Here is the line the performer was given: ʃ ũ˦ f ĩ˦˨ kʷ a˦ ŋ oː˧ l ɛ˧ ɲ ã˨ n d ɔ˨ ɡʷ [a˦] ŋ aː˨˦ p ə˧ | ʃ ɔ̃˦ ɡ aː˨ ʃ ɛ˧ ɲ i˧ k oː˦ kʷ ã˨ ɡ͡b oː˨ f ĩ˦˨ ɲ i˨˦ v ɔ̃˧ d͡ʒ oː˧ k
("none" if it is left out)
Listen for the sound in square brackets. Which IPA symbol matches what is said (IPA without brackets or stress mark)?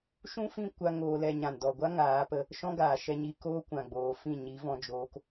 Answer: a˦